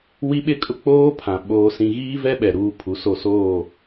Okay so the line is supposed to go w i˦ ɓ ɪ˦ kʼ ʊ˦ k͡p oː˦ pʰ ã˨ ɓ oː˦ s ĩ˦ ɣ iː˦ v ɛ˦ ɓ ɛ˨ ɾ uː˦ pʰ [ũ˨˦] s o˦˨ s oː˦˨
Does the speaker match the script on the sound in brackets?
no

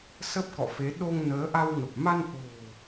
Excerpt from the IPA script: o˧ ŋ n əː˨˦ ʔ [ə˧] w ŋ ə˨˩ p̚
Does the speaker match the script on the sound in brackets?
no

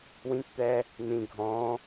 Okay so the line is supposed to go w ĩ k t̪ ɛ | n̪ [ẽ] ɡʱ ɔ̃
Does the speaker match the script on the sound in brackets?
no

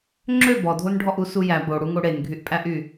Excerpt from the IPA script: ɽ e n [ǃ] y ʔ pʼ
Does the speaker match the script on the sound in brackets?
no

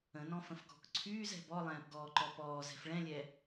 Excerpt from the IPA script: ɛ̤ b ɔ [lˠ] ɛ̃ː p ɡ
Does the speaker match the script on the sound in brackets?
yes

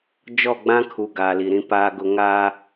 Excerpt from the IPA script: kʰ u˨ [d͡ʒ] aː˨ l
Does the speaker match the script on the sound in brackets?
no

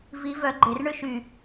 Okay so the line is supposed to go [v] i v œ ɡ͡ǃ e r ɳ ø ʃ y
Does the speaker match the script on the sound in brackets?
yes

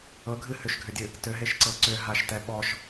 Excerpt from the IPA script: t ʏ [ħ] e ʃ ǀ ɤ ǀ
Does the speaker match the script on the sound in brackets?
no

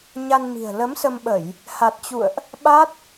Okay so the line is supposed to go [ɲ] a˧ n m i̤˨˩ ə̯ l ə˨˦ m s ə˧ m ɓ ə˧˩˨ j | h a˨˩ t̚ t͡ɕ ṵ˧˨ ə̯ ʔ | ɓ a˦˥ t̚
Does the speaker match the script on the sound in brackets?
yes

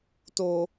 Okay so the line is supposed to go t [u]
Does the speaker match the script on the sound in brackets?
no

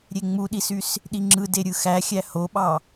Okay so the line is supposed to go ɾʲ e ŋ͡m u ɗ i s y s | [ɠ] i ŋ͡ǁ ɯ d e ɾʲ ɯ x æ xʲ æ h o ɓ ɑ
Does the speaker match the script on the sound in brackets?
no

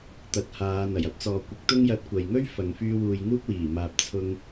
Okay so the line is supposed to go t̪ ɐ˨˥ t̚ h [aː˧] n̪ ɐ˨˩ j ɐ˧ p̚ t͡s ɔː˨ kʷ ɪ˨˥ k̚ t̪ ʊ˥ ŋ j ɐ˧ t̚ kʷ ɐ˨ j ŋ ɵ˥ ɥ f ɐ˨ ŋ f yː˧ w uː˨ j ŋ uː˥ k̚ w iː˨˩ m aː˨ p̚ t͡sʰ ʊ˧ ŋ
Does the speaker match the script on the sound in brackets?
no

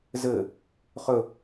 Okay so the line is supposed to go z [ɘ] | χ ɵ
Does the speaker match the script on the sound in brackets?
yes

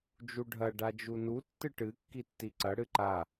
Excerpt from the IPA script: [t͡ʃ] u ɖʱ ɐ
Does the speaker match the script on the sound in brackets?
no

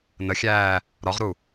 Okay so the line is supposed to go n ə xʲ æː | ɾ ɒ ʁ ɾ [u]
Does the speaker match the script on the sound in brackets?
yes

